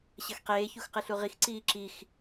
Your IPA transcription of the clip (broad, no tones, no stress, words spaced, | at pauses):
ɕɐxqeː çuxqɨɬuʁix ǀiːǁix